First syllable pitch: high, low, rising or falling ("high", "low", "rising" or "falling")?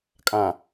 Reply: low